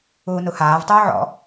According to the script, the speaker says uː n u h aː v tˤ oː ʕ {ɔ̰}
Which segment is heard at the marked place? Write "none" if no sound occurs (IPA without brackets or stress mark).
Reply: ɔ̰